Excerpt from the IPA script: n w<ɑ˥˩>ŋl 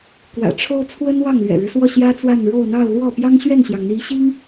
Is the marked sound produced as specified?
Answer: yes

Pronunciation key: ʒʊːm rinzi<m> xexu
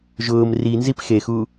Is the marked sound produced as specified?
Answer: no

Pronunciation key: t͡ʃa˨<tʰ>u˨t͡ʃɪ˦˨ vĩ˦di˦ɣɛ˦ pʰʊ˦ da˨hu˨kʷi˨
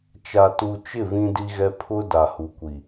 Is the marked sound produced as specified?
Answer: no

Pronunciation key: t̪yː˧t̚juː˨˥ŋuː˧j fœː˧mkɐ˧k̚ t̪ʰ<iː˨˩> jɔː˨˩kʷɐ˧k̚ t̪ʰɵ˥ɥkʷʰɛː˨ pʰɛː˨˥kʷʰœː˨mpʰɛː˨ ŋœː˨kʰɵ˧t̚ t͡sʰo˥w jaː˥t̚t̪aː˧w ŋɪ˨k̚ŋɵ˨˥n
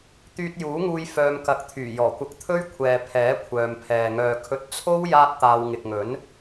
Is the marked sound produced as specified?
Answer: no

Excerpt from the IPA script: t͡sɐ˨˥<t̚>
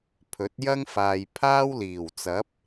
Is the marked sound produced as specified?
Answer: no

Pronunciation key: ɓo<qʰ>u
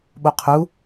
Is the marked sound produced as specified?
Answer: yes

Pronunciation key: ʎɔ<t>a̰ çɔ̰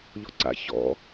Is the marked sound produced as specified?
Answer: no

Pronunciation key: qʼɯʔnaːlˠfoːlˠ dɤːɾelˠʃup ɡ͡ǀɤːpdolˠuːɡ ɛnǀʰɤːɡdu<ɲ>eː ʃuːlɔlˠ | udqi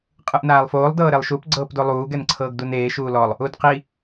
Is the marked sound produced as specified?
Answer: no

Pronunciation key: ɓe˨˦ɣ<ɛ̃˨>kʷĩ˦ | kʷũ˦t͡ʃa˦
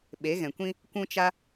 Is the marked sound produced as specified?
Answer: yes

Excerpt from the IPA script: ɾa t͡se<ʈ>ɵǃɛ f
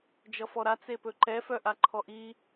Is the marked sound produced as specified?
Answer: no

